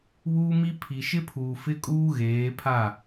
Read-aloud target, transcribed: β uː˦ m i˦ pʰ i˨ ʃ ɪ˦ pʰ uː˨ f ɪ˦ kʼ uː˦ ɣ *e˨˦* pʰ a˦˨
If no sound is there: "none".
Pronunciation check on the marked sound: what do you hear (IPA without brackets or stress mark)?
eː˨˦